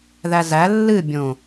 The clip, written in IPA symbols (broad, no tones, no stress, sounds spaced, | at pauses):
ð æ z æ lː ɨ bʲ õ